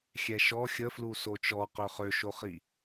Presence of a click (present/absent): absent